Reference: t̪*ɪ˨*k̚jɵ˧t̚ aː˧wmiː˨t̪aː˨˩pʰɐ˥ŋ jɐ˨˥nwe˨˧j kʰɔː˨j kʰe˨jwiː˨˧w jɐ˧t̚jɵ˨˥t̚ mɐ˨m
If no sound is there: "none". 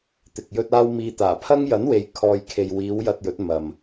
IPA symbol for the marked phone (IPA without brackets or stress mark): ɪ˨